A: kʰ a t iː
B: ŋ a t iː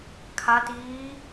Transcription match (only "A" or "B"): A